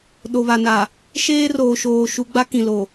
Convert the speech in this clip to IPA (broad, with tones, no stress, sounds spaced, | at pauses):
ɗ o˨ β a˨ n a˨ | ʃ eː˦ r oː˨ ʃ oː˨ ʃ u˨ ɡ͡b a˦ k ĩ˨ l o˨